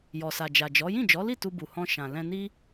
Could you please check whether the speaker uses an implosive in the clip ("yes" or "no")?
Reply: no